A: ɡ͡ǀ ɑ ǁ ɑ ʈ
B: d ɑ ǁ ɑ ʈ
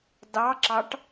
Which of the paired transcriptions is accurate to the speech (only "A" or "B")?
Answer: B